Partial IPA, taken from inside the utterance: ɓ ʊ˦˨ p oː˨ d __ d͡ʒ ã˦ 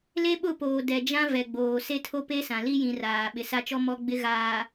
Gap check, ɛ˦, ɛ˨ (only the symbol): ɛ˨